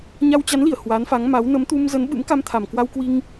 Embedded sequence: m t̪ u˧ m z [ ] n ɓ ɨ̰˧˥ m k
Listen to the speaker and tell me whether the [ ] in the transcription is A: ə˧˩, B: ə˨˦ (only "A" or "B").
B